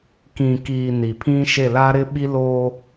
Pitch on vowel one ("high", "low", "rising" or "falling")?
low